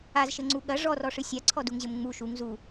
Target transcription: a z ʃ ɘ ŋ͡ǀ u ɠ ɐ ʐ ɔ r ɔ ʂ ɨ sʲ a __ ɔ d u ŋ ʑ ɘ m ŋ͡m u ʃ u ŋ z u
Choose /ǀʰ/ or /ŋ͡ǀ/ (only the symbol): ǀʰ